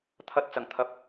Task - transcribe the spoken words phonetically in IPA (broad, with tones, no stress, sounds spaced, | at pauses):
t̪ʰ ɐ˧ t̚ t͡s ɐ˨˩ ŋ t̪ʰ ɐ˨˥ p̚